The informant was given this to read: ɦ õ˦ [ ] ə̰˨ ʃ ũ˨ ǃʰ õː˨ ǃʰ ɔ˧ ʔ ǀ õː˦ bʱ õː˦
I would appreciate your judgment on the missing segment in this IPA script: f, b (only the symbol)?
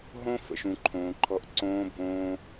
f